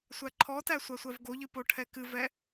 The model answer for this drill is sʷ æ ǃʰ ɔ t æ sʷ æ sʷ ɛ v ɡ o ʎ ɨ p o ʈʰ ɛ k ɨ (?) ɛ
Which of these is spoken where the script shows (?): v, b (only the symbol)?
v